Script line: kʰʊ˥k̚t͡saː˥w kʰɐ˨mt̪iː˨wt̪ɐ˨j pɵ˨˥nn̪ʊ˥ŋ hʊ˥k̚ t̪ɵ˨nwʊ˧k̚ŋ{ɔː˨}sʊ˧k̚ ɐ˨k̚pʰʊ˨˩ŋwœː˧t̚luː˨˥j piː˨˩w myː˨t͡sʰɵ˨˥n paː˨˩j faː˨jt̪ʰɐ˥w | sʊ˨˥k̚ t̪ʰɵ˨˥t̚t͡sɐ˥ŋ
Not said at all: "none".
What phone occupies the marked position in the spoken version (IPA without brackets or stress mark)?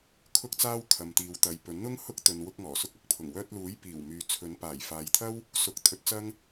ɔː˨˩